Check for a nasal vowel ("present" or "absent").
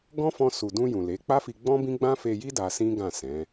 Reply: present